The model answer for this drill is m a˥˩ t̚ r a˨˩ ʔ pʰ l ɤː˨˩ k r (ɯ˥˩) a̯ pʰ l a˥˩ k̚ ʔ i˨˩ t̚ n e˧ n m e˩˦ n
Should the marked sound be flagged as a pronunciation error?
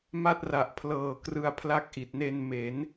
yes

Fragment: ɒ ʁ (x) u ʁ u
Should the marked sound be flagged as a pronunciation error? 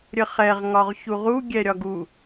yes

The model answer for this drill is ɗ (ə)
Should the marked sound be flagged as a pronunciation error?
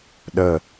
no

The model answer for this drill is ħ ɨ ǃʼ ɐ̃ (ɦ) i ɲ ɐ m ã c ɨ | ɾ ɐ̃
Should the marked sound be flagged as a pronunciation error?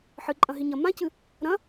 no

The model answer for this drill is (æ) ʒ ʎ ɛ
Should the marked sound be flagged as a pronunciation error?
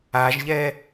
yes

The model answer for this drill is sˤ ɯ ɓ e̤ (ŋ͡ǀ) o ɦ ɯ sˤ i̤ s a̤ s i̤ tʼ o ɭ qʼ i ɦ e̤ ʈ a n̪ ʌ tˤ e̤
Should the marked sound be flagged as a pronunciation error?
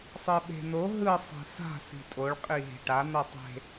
yes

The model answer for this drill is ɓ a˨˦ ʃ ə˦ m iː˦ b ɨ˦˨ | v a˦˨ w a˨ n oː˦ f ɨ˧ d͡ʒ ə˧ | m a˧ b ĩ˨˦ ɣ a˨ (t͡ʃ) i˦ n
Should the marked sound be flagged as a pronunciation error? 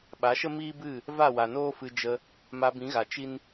no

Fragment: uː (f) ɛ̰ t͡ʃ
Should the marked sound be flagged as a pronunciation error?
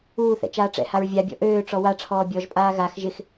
yes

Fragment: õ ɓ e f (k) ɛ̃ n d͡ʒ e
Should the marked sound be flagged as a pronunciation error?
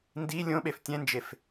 yes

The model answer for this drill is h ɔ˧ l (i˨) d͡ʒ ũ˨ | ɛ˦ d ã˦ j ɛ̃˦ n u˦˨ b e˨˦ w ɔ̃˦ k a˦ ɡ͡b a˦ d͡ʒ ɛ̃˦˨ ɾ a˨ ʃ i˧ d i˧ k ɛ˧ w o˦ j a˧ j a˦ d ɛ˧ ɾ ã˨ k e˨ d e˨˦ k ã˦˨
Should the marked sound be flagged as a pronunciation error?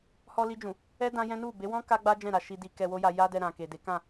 yes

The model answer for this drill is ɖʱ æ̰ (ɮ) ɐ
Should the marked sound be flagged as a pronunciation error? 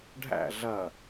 no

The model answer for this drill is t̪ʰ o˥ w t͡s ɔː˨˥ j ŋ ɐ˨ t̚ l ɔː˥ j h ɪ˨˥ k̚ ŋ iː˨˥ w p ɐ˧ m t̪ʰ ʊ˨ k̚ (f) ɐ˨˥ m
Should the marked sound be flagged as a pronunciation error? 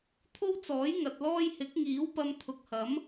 yes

